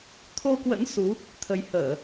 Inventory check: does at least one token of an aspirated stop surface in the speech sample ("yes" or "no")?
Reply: yes